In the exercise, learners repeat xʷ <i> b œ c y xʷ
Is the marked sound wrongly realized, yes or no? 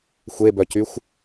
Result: yes